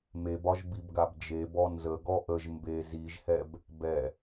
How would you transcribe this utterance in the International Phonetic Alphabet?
m e b ɒ ʒ b i b ɡ a b d͡ʒ e b ɔ n z ə ɡ ɔ ʔ ə ʒ m b e z i ʒ h ɛ b | b ɛ

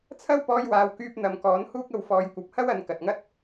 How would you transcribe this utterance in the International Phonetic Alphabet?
t͡sʰ ɐ˥ w p ɔː˧ j w aː˨ w k yː˧ p̚ n̪ ɐ˨ m k ɔː˨˥ n h uː˥ k̚ ɐ˧ w f ɔː˨˧ j kʷ ɐ˨ p̚ h ɐ˥ w ɐ˨˧ n k ɐ˨ t̚ ŋ ɐ˥ t̚

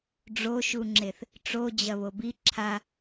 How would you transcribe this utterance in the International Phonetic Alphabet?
ɖ͡ʐ o ʃ u ŋ͡ǁ e θ | ʈ͡ʂ o d͡ʑ ɐ β o b i ǁʰ a

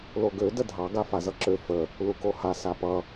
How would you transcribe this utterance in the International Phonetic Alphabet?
l o ɡ ø d ə dʱ ɑ ɡ a f a z ʌ ǁ ø f ə | l u k o h a s a p ʌ

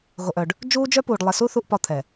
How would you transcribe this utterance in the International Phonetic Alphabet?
ɣ o˨ ʔ œ˨ ɖ | d͡ʒ uː˦ d͡ʒ œ˦ p uː˨ ɖ lˠ e˨ s u˦ θ u˦ ʔ p ɒ˦ t̪ʰ ɛ˨

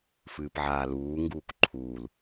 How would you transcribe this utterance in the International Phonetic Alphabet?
f ɨː p ʕ aː l uː ŋ ɡ uː k ǃʰ uː l

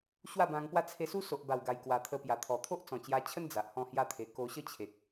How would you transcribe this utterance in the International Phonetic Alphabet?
ɕ w a˥˧ b ã˧ ŋ p w a˦ t͡sʰ e˧ s u˦ s o˨ ʔ b a˨˩ w ɡ a˨˩ j k w a˨˩ t̪ʰ ə˧ p j a˨˩ t̪ʰ ɔ˨˩ t̪ʰ o˦ ʔ t͡s ɔ̃˨˩ t͡ɕ j a˧ t͡ɕʰ ə˦ n d͡z a˨ ʔ h ɔ̃˥˧ h j a˥˧ t̪ʰ e˧ k o˧ ɕ ə˥˧ t͡ɕʰ e˨ k̚

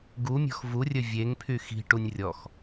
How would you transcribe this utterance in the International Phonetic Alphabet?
ɡ u mʲ ɔ̤ x v u rʲ ɵ vʲ e ŋ pʰ y x i̤ ʈ u nʲ rʲ ɔ x

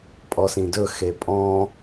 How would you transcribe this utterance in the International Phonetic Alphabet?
pʼ ɔ s ĩ d ɵ x e pʼ ɔ̃

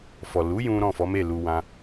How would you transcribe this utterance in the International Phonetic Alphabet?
f ɔ˨ l u˨˦ j ũ˦ ɾ ɔ̃˦˨ f ɔ˨˦ m e˦˨ l u˧ w ã˦

